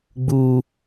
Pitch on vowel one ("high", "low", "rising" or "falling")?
high